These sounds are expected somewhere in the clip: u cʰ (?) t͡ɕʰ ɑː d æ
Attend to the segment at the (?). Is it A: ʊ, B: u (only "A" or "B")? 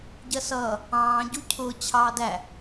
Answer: A